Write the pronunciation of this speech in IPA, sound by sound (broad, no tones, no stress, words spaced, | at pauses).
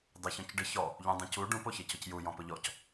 dˤeçɔ̃cɖɪ çɔ | ʎũdˤũcu ɖũ poçecʊcju jɔ̃pʊʎɔc